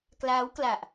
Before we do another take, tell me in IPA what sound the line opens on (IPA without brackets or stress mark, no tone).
k